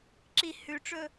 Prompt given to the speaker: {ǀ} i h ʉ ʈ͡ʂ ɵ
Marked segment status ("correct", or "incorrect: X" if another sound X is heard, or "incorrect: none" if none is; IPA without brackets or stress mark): incorrect: ǁ